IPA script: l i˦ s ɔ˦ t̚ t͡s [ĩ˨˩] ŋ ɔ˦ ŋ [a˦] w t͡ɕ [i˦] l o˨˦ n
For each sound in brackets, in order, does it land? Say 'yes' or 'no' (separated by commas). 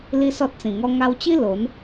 yes, no, yes